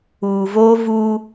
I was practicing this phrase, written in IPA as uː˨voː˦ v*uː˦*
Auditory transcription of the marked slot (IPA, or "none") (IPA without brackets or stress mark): uː˦